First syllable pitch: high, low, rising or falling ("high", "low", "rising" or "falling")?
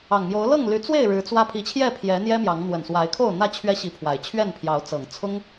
low